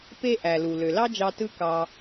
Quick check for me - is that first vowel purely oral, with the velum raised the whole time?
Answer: yes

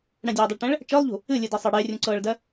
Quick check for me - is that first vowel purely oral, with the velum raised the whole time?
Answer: no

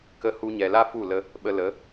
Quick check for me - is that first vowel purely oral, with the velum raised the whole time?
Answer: yes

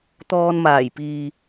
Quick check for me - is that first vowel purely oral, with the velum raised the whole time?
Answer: yes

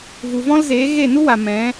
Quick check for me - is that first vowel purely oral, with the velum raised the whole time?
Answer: yes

